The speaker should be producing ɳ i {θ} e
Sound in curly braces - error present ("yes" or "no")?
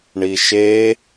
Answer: yes